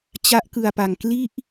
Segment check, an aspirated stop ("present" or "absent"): absent